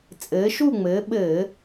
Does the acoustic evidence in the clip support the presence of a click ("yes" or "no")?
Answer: no